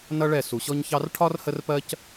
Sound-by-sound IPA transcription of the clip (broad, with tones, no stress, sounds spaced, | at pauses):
n ʌ˦ ɭ ɛ˦˨ s u˨ ɕ ɔ˦ ɲ ç ɑ˦ r ʈʰ ɒ˦ r h ə˦ r p ɜ˦ c